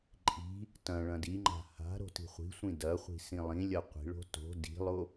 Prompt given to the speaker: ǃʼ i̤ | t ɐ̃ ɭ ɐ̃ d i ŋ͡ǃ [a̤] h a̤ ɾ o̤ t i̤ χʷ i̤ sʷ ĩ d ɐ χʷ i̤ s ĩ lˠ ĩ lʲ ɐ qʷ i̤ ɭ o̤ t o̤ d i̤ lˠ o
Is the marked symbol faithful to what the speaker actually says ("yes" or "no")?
yes